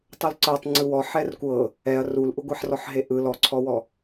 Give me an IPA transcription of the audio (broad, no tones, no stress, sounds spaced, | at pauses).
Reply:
tˤ u l ǀ ɤ tˤ ŋ͡ǀ ɯ w ɔ ħ ɛ r kʷ ɤ | ɛ ɐ̯ r u l ʔ u ɡʷ ɛ ħ r ɔ ħ ɦ e ʔ ɯ l ɔ ǀʰ ɔ w ɔ